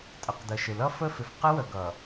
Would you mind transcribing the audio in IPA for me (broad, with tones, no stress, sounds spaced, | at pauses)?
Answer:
tʼ ə˨ q d ə˨ ʃ ɪ˨ l ʌ˦ f ə˦ f ɪ˨ f q ɪ˦ w ə˨ ɡ ʌ˨